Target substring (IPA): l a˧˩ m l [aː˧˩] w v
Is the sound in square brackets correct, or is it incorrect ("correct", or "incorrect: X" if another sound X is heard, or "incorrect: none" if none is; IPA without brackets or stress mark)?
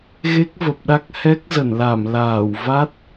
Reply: correct